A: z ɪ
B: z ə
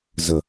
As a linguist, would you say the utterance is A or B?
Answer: B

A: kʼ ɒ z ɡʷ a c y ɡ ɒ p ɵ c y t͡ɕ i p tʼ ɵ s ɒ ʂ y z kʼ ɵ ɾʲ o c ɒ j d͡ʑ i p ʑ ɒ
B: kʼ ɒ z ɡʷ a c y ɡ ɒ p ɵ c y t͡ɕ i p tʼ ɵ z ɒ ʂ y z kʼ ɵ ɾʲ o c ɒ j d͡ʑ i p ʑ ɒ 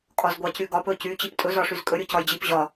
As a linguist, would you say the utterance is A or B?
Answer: B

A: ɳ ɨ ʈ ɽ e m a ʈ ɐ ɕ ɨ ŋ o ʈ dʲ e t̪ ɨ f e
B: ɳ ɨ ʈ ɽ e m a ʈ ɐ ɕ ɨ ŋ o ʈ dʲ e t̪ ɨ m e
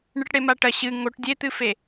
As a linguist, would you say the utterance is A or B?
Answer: A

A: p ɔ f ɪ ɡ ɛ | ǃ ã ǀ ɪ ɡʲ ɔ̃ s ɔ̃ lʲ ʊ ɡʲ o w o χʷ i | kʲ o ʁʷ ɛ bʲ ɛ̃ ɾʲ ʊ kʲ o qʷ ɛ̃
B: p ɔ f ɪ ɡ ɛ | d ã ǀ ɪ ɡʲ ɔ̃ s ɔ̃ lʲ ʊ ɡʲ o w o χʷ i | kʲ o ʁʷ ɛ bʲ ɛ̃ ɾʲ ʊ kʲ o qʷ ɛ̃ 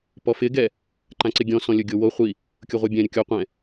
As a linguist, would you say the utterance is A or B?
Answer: A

